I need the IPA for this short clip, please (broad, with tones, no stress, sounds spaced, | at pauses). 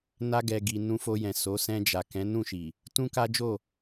n a˧ ɡ ɛ˨ ɡ i˨ n ũ˧ f o˧ j ɛ̃˨ s o˨˦ s ɛ̃˧ d͡ʒ a˨ k ɛ̃˨˦ n ũ˦˨ ʃ i˨ | t ũ˦ k a˦ d͡ʒ o˦˨